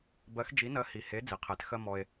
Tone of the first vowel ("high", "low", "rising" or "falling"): rising